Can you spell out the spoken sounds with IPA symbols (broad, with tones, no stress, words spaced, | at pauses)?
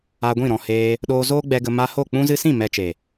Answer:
a˧ɡʷĩ˦˨ɾɔ̃˨ heː˧ | ɗoː˧zoː˦ɡ͡bɛ˧ ɡə˧ ma˧ho˦˨ k͡pũ˧zɨ˧sĩ˦˨ mɛ˧t͡ʃe˨